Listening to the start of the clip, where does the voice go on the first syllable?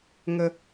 low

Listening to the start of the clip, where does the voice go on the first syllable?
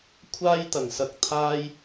high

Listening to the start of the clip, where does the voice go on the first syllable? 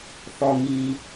low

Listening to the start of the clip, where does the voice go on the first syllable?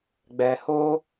low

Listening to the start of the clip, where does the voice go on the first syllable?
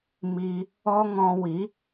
high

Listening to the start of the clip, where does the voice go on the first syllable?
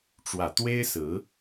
low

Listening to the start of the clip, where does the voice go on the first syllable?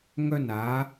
high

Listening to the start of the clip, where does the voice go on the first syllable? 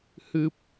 low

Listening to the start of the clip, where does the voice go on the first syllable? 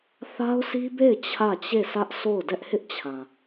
high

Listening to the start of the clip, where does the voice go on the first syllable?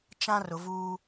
high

